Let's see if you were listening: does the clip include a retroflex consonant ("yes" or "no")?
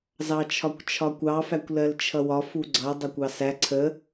no